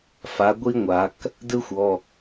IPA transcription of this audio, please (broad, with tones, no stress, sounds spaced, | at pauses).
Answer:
f a˩˧ ɡʷ i˥ ŋʷ a˩˧ k | d ɯ˥ xʷ ɔ˩˧˩